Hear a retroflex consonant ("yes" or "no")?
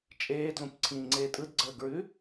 no